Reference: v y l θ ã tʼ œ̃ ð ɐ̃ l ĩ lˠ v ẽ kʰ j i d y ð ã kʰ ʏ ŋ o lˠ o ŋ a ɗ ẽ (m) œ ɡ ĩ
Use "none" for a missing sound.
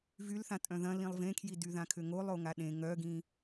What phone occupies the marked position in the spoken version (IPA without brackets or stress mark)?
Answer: ŋ